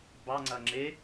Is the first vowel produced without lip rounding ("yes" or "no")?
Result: yes